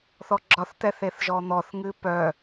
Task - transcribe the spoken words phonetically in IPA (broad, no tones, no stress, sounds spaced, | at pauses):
θ ɔ ɡ͡ǁ ɒ θ t̪ ɛ θ e θ ʒ ɔ n̪ ɔ θ ŋ ɨ p œ